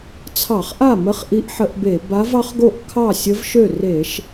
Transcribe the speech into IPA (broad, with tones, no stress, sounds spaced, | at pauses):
t͡sʰ ɑ˧˩˧ χ ʔ a˥˩ m ə˧˥ χ ʔ i˧˥ ʔ ħ ə˧˩˧ ʔ b e˧˩˧ b a˧˥ v ɑ˧˥ χ ɡ o˥˩ ʔ kʰ ɑ˥˩ sʲ ə˧˥ v ʃ ø˥˩ r e˧˩˧ ʃ